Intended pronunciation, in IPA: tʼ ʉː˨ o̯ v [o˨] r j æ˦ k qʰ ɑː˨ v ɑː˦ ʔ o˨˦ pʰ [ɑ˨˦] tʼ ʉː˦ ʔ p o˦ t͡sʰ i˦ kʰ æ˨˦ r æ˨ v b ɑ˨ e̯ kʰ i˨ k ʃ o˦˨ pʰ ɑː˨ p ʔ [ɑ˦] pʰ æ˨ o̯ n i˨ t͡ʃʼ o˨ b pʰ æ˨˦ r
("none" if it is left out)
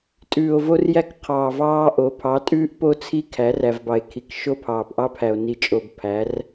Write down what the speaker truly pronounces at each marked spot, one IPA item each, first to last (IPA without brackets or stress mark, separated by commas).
o˦, ɑ˨˦, ɑ˦